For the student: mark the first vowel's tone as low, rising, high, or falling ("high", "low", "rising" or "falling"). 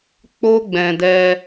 high